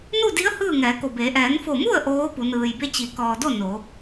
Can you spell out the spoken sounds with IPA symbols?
n u˥˨ d i˧˥ ə̯ h ɯː˥˨ ŋ ɛː˩˧ k o˧˩ b eː˩˧ ʔ ɛː˩˧ n f o˧˩ m u˥˨ ə̯ ʔ oː˧˥ p u˩˧ n ɯː˩ j b e˥˨ t͡ɕ i˩˧ k ɔː˩ d o˥˨ n o˩˧

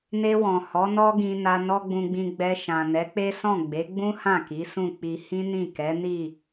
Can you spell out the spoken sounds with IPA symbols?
n e˧ w ɔ̃˨ h ɔ˨˦ n ɔ˦ ɡ ĩ˧ n a˧ n ɔ˦ ɡ͡b ũ˧ ɡ͡b ĩ˧ ɡ͡b ɛ˧ ʃ ã˨ n ɛ˨˦ k͡p e˦ s ɔ̃˦˨ ɡ͡b e˨˦ ɡ͡b ũ˦ h ã˦˨ k i˨˦ s ũ˦˨ k͡p i˧ h ĩ˦ n ĩ˦˨ k ɛ˨˦ n i˦˨

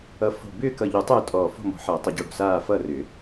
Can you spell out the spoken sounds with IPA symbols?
ʌ˧˩ f o̤˧˩ b ʏː˥˨ k ʌ˧˩ ʎ u˨˩˦ tˤ ʏː˥˨ tʼ ɔː˧˩ f o̤˥˨ m ɔ̤˨˩˦ ħ ʌː˨˩˦ tˤ ʏ˨˩˦ ɟ o˧˩ ɽ o̤˧˩ s aː˥˨ f ʌː˥˨ r ʏː˨˩˦

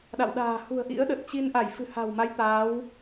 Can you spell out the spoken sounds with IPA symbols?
ɗ a̰˧˨ w ɗ a̤ː˨˩ h ṳ˨˩ ə̯ ʔ ḭ˧˥ ə̯ ɗ ə˨˩ t̚ t͡ɕ i˧ n ʔ a˧˩ j f ɨ̤˨˩ h a̤˨˩ w m a˨˦ j t̪ aː˨˦ w

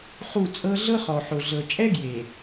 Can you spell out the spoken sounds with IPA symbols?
χ u˦˨ t͡sʼ ɤ˦ ɮ ɤ˦ χ ɔ˨ ħ o˨ ɮ ɤ˨ t͡ʃʼ ɛ˦ ɡ j e˨

